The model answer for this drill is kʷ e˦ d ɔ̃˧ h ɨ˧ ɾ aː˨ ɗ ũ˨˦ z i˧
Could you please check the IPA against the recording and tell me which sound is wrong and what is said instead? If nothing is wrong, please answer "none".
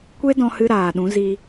none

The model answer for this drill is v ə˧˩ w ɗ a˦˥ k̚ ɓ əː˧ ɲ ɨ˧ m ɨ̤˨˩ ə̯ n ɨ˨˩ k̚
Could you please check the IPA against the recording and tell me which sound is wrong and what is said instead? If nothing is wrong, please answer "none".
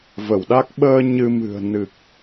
none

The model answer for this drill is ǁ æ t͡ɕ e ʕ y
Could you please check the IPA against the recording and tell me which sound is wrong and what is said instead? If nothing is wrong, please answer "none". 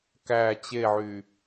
ǁ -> k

